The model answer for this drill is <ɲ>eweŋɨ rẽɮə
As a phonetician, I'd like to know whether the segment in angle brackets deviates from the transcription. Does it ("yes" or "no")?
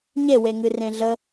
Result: no